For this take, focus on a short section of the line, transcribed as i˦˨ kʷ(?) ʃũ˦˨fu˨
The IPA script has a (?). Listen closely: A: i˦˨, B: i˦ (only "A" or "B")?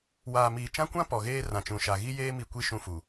A